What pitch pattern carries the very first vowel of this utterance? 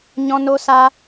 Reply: high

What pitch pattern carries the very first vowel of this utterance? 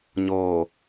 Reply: low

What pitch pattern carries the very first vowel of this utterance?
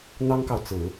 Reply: high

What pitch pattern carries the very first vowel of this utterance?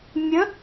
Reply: rising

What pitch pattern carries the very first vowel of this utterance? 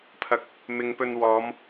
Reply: rising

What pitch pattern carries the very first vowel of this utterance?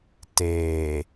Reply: low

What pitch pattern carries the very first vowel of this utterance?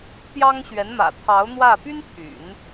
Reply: high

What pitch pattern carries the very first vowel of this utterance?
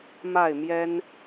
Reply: falling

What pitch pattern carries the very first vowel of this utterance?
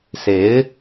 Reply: rising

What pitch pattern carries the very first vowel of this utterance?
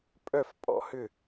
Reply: falling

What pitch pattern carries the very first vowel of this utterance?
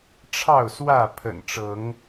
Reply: falling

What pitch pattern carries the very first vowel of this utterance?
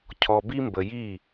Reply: low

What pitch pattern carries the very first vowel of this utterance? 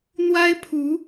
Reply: high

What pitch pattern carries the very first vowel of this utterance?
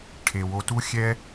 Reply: low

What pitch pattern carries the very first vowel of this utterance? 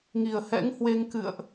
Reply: low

